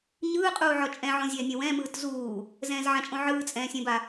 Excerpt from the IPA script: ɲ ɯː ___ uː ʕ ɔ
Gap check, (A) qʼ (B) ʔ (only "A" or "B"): A